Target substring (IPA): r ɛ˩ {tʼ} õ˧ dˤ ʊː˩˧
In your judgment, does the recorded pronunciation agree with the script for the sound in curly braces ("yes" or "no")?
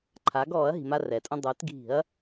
yes